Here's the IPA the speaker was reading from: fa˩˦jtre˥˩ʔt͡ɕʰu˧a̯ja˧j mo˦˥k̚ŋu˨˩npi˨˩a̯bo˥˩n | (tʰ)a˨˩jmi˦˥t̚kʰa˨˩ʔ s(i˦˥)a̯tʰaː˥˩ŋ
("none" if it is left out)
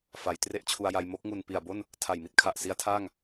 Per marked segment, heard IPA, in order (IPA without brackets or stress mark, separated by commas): tʰ, i˦˥